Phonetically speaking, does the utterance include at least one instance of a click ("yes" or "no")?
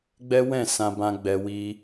no